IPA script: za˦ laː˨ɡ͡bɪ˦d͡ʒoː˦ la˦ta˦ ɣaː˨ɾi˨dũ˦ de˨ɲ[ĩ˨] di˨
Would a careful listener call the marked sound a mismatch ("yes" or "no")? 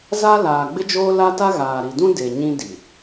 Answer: yes